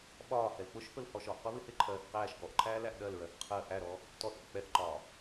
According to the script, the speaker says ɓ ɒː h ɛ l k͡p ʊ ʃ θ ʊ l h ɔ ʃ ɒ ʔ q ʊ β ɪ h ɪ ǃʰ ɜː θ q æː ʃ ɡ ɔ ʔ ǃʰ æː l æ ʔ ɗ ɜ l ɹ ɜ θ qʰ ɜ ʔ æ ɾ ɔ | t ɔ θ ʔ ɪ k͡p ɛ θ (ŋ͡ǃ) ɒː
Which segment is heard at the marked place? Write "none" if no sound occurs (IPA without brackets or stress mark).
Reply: ǃ